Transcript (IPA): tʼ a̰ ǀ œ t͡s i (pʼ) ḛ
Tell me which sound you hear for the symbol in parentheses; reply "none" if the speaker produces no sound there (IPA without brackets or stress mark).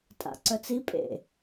pʼ